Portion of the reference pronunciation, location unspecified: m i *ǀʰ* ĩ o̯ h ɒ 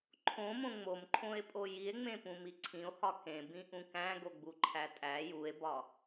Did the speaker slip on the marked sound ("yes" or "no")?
no